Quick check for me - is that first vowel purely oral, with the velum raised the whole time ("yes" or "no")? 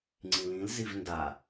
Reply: no